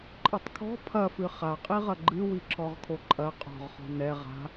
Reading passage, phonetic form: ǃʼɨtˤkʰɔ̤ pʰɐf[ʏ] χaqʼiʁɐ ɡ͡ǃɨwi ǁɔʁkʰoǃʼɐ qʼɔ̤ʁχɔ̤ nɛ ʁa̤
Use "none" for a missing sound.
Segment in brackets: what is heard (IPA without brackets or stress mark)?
ɨ